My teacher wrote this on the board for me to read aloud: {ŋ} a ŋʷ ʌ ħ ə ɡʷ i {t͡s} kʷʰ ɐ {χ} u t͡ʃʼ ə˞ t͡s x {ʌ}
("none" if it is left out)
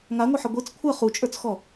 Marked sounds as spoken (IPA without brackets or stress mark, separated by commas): ŋ, t͡s, χ, ɔ